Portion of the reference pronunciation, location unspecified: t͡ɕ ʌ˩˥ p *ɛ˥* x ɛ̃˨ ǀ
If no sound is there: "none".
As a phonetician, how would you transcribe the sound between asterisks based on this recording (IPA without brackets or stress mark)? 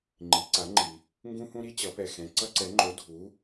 ɛ˨